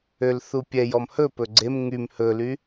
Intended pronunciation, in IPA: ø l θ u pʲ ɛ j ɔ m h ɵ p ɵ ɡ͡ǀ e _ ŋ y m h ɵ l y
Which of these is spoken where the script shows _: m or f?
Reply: m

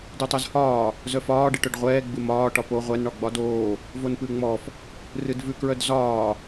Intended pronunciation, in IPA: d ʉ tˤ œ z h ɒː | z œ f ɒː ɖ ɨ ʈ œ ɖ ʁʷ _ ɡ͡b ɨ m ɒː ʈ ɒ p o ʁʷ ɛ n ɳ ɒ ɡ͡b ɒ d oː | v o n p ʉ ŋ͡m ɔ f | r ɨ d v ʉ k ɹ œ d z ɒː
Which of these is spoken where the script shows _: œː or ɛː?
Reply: ɛː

